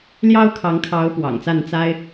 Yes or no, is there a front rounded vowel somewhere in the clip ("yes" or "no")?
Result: no